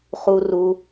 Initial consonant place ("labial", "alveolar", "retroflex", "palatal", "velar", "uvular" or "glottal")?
uvular